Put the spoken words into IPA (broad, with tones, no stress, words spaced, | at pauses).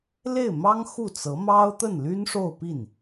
le˥˩ɪ̯mɑ˥ŋ xu˥˩t͡sɤ˧˥ mɑ˥ʊ̯t̪ə˥˩nly˥nʂo˥˧ʊ̯ pi˥˩n